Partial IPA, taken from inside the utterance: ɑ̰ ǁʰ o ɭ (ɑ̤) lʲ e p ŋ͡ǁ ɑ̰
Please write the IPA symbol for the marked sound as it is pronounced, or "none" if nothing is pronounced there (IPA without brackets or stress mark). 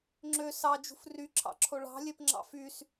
ɑ̤